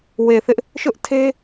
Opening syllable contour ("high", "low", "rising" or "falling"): low